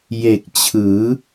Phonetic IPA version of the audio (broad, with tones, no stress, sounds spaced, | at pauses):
j e˨˩ k̚ t͡ɕʰ ɯː˩˦